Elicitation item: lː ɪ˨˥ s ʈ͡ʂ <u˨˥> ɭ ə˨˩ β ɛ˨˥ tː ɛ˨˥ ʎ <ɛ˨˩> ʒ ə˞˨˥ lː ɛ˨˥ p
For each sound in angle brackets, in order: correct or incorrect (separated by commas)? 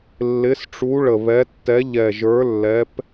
correct, correct